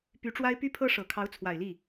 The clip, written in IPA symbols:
p y˧˥ ʈ͡ʂ w a˥ ɪ̯ p y˥ pʰ ɤ˥ ʂ ɤ˨˩ kʰ ɑ˧˥ ʊ̯ t͡sʰ w a˨˩ ɪ̯ l i˥˩

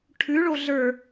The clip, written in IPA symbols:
ʈʰ ʉ ɭ o ɮ ə˞

